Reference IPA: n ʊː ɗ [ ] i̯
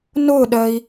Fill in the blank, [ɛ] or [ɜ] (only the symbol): ɜ